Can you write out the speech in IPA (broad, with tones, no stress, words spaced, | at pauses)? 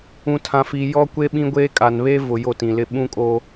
ũ˨tʰã˨fiː˨ jɔ˦kʷe˦ ɓĩ˦ɡʷeː˦kʼa˨n βe˦ vʊ˨ jo˦˨tĩ˨lɪ˦˨ ɓũ˦kʼo˦